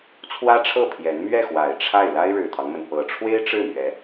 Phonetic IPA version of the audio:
t͡sʰ w ä˥ ʈ͡ʂʰ ɤ˥˩ pʰ j ɛ˧˥ n m ɥ ɛ˥˩ x w a˨˩ ɪ̯ ʈ͡ʂʰ a˥˩ ɪ̯ l a˥ ɪ̯ ɻ ɻ̩˨˩ t̪ʰ ɑ˦ ŋ m ə˩ n p ɤ˨˩ ʈ͡ʂʰ w e˥ ɪ̯ ʈ͡ʂ ɻ̩˥˩ m ɥ ɛ˧˥

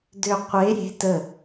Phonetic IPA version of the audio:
d ø qʷ e ɾʲ e̤ t ə

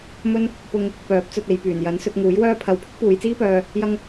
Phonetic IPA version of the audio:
m ɵ˥ n | p ʊ˥ ŋ | p œː˨˥ p̚ t͡s ɵ˨ t̚ e˨˧ j p yː˨˩ n j ɐ˨˥ n s ɵ˧ t̚ ŋ uː˨˥ j w œː˥ pʰ ɐ˧ w pʰ ɪ˥ k̚ p uː˨˧ j t͡s iː˥ p œː˧ | j ɐ˥ ŋ

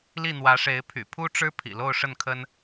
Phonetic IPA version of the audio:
l i˥˩ n̪ w ä˧˥ ʂ e˧˥ ɪ̯ pʰ y̰˨˩ pʰ u˥ ʈ͡ʂ ɻ̩˥ pʰ ḭ˨˩ l o˥˧ ʊ̯ ʂ ə˥˩ n kʰ ə˥ n

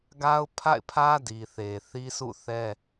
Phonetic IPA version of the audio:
ɡ a˦ ʊ̯ pʰ a̰˦˨ ɪ̯ pʰ ä˦ d i˨ θ e˨ θ i˦ s ṵ˦˨ θ ɛ˦

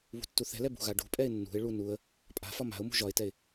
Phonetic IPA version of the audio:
β ṳ tː u θ ɛ̤ l ɛ b ṳ ɣ a ɖ ṳ pʼ ɛ ɪ̯ nː ṳ ɪ̯ ɭ u n u ə̯ | pʼ a̤ f ɒ m a̤ ʊ̯ m ṳ ʒ ɒ ɪ̯ t ɛ ɪ̯

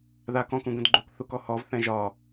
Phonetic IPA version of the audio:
ð a k ɔ̃ k ũ ɡ ə̃ d ɡ͡ǃ u k θ u k ɔ h ɔ v θ ɛ̃ ʒ ɒ

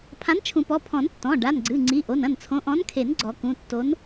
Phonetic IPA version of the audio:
pʰ ã˨˥ n t͡ʃʰ ũ˨˩˦ p ɔ˩˧˩ pʰ ɔ̃˨˩˦ n tː ɔ̃˩˧˩ ɖ a˩˧˩ n ɡ͡ǀ ɨ˩˧˩ ŋ͡ǀ i˩˧˩ ʔ o˩˧˩ n ɐ̃˥˩ n t͡sʰ õ˨˥ ʔ ɔ̃˨˥ n kʰ e˨˩˦ n ɡ͡ǀ ɔ˨˩˦ k ũ˩˧˩ tː o˨˥ n

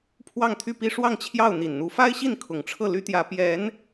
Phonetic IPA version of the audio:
pʰ w ɑ˥˧ ŋ t̪ʰ y˥˩ p i˥ ʂ w ɑ˥˧ ŋ t͡ɕʰ j ɑ˥˩ ʊ̯ n̪ i˨˩ n n̪ u˧˥ f a˥ ɪ̯ ɕ i˥˩ n kʰ ʊ˨˩ ŋ ʈ͡ʂʰ ɤ˥˩ l y˥ t̪ j ä˧˥ p j ɛ˧˥ n

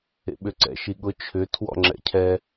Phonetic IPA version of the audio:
ḛ ɓ ʏ ǀ ɛ̰ ʃ i ɠ ʊ t͡ʃʰ ʏ tʰ w ɔ̰ ŋ͡ǁ ɛ̰ cʰ ɛ

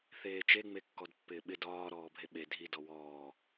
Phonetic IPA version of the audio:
θ eː t͡ʃ e ŋ͡m e kː ɔ d pː ɪː ɓ ɪ d ɒː ɾ ɔː bʱ e ɓ e dʱ i d ɔ w ɔː

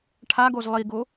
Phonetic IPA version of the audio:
ʈʰ a ɡ o z lˠ i ɡ o

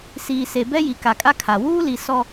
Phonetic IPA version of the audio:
s iː˨ s e˨ b ɛ˦ j i˨ k a˨ kʼ a˦ kʰ a˨ w uː˦ l i˨ s ɔ˦

